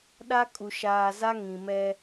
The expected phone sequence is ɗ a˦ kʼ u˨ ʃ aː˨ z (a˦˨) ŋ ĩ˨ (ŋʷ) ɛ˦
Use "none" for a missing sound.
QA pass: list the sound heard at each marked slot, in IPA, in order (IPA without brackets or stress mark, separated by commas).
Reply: a˦, m